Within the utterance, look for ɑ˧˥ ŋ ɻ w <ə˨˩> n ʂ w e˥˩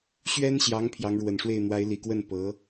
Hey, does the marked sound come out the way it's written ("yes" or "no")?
yes